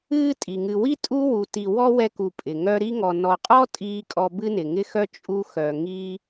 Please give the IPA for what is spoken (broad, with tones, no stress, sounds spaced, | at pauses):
ɨː˦ tʼ i˩ ŋ ɨ˨ w i˥ tʼ u˥ w u˨ t i˨ w ɔ˥ w ɛ˦ k u˨ pʼ ɪ˩ ŋ œ˦ ɾ i˥ ŋ ɔ˨ n ɔ˨ qʼ ɔ˥ tʼ iː˥ kʼ ɔ˦ b ɨ˥ n ɪ˩ ŋ ɪ˥ x œ˥ t͡ʃʼ u˥ x œ˨ ŋ iː˥